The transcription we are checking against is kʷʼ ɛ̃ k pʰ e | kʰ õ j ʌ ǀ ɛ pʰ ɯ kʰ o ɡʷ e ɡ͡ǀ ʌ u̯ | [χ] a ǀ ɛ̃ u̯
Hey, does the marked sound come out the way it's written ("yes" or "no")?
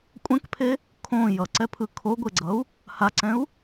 no